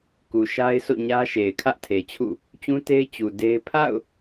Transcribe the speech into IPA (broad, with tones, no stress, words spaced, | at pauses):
ku˨ʃa˦ɪ̯sʰo̰˦˨ɲä˦ ʃe˨ɪ̯kʰä˦ʔtʰe˨t͡ɕʰṵ˦˨ | t͡ɕũ˦te˦ɪ̯ t͡ɕu˨de˦ɪ̯ pʰa̰˦˨ʊ̯